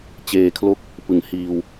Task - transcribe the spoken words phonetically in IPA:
t͡ɕ eː˧ kʰ l o˥˩ k̚ | p ɯ˨˩ ŋ h iː˧ w

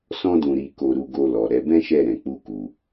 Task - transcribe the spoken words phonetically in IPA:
s ɔ̃˦ d ũ˧ ɾ i˧ k o˧ ɾ u˧ ɡ o˧ l ɔ˨ ɾ ɛ˧ b ɛ̃˦ ʃ ɛ˦˨ ɾ ɛ̃˧ k͡p u˦ k u˧

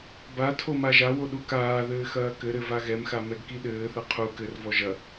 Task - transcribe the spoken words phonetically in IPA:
b a tʰ o m a ʒ a w o ɗ u k aː ð ɘː x ɐː k ɘ ɾ ɘ v a ɣ ɛ m x a m ɛ ɡ k i ɗ ɘː θ ɐ qʰ u k ɘ r v ɔ ʒ ɐ

